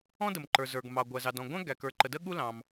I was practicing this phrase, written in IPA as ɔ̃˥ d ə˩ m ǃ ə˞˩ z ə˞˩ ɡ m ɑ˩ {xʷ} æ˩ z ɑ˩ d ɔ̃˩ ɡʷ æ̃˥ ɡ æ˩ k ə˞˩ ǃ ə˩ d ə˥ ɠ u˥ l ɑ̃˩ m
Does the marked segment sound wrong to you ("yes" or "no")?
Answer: yes